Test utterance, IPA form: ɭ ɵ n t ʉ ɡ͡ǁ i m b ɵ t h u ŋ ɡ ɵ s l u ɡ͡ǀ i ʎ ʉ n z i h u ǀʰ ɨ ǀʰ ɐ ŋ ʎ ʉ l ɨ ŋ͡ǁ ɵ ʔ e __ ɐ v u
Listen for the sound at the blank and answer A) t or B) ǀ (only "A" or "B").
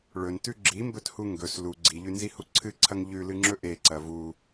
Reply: B